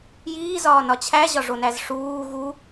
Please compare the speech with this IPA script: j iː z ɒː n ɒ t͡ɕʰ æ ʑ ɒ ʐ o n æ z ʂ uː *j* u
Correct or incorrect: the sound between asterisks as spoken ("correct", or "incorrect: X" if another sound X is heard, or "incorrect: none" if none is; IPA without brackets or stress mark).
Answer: incorrect: ɣ